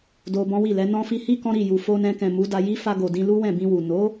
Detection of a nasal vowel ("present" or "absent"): present